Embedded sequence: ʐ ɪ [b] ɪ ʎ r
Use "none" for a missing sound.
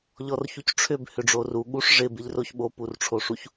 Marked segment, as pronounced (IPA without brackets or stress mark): b